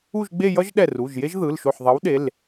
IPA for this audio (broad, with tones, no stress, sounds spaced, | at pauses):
u˥˧ ʒ ɡ͡b e˥˧ j ʌ˥ ʒ ɗ ɛ˧˩ r u˩˧˩ ʒ j e˥ ʒ ð ɯ˩˧˩ l ʃ o˧˩ ħ ðˤ ʌ˨˥ w ɗ e˩˧˩ l